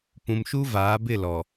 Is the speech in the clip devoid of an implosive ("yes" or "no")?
yes